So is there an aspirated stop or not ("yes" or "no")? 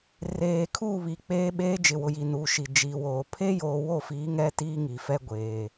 yes